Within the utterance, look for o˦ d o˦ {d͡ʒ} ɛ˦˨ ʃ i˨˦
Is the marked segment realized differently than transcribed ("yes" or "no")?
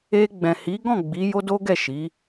yes